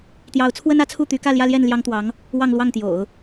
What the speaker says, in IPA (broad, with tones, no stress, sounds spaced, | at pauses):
t̪ j ɑ˧˥ ʊ̯ t͡sʰ w ə˥ n ä˧˥ t͡sʰ u˥˩ t̪ y˧˥ k ä˥˧ l j ä˥˧ l j ɛ˥˩ n l j ɑ˥ ŋ t̪ w ɑ˧˥ ŋ | w ɑ˥˧ ŋ l w ɑ˥˩ ŋ t̪ j o̰˨˩˦ ʊ̯